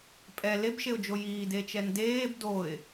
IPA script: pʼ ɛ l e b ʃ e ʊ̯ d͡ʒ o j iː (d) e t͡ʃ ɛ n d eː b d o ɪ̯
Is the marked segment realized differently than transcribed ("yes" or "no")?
no